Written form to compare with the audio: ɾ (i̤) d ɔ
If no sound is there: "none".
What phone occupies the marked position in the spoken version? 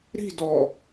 i̤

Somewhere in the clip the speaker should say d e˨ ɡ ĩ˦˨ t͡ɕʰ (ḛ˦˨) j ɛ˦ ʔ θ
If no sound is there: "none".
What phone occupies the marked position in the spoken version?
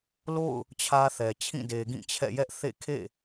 ɛ̰˦˨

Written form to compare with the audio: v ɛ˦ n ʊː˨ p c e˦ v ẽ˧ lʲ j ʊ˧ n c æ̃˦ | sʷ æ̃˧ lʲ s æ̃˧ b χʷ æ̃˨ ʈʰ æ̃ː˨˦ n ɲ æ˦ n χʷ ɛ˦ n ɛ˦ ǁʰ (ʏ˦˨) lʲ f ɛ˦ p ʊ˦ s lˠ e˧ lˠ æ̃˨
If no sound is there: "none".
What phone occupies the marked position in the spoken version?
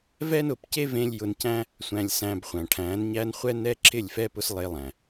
ɪ˦˨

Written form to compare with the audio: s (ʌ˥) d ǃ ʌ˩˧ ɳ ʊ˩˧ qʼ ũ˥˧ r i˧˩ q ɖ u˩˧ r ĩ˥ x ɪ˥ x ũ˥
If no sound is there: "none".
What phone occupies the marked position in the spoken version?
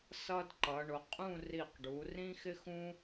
ʌ˥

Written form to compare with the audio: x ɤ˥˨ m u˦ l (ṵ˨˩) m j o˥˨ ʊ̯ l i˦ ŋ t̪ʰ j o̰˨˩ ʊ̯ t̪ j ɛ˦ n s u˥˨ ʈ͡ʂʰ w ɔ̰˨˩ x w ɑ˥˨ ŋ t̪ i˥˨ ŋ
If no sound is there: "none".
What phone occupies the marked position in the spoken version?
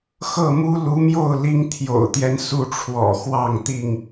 u˨˦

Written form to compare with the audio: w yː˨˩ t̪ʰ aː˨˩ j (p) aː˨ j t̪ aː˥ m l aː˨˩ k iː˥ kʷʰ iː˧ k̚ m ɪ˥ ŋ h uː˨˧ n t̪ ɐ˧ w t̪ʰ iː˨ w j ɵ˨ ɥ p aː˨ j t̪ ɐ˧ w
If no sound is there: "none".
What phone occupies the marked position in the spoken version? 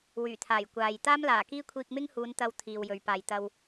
kʷ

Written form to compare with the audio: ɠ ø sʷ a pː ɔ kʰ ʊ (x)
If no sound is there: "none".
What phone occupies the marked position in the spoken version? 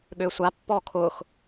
x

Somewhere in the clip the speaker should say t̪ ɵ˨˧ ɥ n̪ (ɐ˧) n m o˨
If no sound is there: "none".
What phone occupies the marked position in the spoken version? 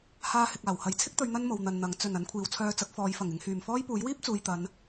ɐ˥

